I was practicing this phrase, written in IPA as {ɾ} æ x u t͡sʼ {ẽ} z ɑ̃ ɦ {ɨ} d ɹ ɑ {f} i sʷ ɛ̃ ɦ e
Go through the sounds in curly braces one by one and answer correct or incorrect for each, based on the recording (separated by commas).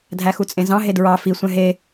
incorrect, correct, incorrect, correct